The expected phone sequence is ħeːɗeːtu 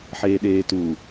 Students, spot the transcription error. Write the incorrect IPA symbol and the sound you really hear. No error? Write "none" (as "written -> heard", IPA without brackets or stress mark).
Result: none